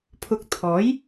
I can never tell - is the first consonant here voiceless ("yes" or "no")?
yes